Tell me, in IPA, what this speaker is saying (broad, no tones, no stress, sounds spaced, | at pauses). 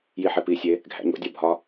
j i ħ e p i sʲ e | ɡʱ æ̰ ɲ o̰ dʲ ɒ bʱ ɒ